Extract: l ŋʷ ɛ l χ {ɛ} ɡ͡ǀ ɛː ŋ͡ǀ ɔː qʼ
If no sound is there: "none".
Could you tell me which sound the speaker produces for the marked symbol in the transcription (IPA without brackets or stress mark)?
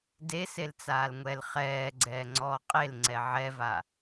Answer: ɛː